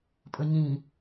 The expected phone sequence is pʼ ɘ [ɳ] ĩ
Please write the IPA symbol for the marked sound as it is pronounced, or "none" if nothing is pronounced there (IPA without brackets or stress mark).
ɲ